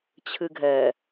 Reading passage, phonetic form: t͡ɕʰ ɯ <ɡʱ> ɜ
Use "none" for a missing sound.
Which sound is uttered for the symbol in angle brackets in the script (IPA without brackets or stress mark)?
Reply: ɡʱ